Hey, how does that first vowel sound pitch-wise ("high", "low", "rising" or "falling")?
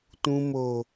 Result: low